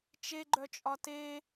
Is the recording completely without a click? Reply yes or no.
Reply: no